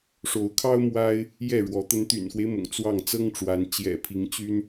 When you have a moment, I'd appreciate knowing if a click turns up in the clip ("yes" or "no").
no